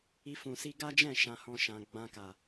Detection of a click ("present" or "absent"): absent